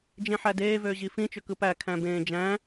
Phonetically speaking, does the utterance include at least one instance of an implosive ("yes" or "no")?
no